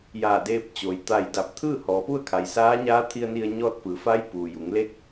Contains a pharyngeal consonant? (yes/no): no